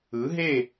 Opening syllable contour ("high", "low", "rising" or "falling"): rising